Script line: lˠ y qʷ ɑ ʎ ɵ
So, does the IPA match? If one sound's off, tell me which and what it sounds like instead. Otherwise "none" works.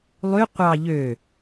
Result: ɵ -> ø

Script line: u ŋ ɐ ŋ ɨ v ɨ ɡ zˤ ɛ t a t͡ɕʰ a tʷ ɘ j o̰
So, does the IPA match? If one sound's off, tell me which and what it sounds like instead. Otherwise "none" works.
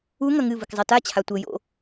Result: ɡ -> k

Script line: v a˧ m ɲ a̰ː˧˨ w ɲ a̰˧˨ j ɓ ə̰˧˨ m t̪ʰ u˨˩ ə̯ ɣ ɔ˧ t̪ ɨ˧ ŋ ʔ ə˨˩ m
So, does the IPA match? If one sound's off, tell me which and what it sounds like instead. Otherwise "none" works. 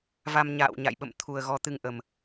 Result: none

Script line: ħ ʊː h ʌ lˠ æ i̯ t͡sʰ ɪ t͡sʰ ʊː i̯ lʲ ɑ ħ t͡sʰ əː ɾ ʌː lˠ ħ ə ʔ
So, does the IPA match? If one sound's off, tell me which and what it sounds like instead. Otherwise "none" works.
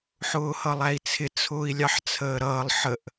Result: none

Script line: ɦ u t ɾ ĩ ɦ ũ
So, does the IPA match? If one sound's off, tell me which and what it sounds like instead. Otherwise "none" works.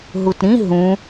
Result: none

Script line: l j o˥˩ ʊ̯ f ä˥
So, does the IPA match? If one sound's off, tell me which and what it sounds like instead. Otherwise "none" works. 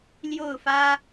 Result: none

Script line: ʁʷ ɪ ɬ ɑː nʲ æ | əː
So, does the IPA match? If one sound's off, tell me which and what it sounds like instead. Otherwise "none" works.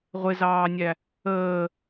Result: ɬ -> z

